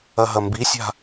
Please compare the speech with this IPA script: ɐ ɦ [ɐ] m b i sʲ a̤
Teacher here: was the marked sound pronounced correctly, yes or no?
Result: yes